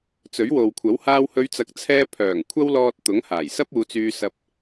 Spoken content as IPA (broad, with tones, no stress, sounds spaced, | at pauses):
t͡s ɵ˨˥ ɥ w o˨ w kʷʰ ɐ˨˥ w h aː˧ w h ɵ˨˧ ɥ t͡s ɐ˨ k̚ t͡sʰ ɛː˧ pʰ œː˨˩ ŋ kʷʰ ɐ˥ w l ɔː˧ t̚ t̪ ʊ˨˥ ŋ h aː˨˩ j s ɐ˥ p̚ uː˨˧ t͡s yː˧ s ɐ˧ p̚